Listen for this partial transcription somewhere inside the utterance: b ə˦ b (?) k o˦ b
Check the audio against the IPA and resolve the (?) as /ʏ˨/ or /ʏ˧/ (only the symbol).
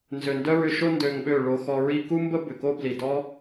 ʏ˨